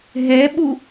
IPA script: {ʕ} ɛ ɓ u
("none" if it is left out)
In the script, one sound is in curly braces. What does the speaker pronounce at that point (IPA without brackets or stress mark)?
ɦ